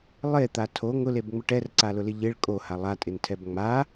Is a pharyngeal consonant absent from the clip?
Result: yes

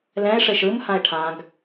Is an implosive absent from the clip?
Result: yes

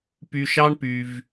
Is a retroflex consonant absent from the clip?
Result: no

